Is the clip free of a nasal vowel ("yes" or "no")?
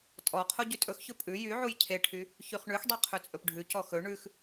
yes